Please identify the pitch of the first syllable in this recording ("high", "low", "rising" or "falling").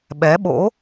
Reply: rising